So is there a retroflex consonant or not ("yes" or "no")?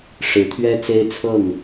yes